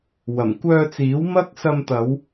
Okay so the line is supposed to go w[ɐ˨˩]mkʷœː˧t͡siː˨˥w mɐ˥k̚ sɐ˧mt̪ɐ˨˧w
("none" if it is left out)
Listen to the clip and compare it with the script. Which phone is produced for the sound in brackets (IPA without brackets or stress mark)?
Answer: ɐ˨˩